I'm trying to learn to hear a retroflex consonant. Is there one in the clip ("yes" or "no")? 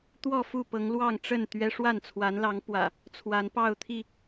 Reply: yes